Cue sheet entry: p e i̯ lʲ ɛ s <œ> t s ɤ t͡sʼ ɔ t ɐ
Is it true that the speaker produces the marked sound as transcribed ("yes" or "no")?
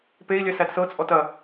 no